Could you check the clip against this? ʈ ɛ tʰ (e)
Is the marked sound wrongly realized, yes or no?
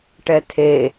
no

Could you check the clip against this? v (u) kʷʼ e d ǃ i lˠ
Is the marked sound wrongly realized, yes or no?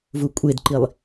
no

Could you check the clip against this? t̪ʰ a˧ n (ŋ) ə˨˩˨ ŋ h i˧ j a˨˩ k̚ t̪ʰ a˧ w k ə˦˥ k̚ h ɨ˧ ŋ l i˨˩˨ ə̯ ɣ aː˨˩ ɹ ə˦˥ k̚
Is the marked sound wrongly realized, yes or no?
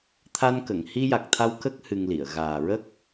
yes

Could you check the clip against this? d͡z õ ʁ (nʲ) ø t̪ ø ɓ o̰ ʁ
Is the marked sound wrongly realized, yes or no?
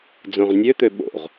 no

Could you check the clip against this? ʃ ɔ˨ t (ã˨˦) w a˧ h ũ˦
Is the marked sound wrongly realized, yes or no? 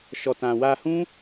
yes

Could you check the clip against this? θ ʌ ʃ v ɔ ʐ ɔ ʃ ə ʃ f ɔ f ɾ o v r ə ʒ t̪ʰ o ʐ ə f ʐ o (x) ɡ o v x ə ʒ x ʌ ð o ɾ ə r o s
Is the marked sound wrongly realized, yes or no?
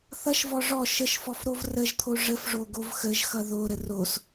yes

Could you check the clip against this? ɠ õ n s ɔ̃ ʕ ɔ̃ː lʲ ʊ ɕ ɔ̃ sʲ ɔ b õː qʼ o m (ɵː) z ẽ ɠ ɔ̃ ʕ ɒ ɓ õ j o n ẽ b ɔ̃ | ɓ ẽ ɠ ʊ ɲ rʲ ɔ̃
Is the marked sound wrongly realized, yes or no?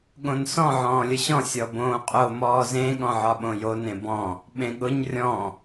yes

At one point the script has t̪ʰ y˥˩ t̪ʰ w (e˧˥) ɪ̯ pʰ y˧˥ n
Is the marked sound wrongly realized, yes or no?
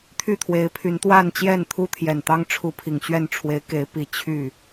no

